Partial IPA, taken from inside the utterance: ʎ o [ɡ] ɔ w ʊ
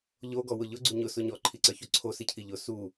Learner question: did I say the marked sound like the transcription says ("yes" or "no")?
yes